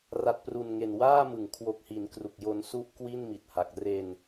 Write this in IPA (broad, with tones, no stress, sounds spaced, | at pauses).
r a˨˩ t̚ p r u˨˩ n ŋ e˨˩ n w aː˥˩ m ɯ˩˦ ŋ kʰ w o˨˩ k̚ h i˩˦ n k r u˨˩ k̚ j o˧ n s u˦˥ ʔ k w i˥˩ n m i˨˩ t̚ h a˨˩ k̚ r e˧ n